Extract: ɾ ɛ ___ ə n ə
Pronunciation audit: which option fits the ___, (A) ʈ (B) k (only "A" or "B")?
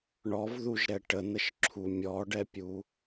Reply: A